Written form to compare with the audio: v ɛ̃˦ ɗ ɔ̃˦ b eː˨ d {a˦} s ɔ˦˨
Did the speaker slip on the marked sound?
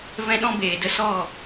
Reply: yes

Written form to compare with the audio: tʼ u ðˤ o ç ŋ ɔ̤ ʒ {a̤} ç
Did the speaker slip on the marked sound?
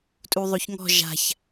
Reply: no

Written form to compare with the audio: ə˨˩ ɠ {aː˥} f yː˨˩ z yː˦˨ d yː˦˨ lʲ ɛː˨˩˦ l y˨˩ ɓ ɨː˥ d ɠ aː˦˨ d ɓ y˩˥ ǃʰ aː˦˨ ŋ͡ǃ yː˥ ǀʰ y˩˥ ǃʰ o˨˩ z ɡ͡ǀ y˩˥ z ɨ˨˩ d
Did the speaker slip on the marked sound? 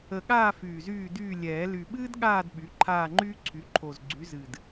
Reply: yes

